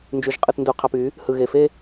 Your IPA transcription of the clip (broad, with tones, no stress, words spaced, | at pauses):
nd͡ʒy˨ʒqʼɯ˨tndu˨ qʰɑ˨p y˨˦ | hɯ˨ ɣe˨fe˦